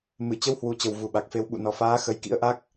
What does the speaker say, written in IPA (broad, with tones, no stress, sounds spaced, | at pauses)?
m ɨ˧˩ t͡ɕ ə˧ w h w u˨˩ t͡ɕ ə˨˩ w v u˨˩ ɓ a˨˩ k̚ f e˧ w ɓ ṵ˧˨ n ɔ˨˩ f aː˨˦ x ə˨˦ j k ḭ˧˥ ə̯ ʔ a˦˥ k̚